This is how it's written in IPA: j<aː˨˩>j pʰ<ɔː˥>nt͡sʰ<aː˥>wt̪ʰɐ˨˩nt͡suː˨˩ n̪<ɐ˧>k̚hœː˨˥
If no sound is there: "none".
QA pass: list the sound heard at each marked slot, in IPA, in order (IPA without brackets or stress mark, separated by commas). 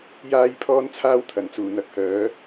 aː˥, ɔː˥, aː˥, ɐ˧